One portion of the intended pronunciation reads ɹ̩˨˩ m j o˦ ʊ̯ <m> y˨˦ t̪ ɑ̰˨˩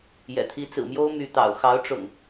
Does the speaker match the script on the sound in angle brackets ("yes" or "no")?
yes